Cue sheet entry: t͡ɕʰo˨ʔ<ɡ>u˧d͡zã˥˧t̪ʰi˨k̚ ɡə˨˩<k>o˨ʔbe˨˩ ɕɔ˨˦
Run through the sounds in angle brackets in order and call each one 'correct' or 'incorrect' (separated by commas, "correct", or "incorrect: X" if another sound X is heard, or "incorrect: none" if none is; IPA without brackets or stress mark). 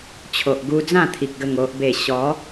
correct, incorrect: ŋ